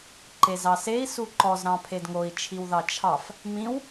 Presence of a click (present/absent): present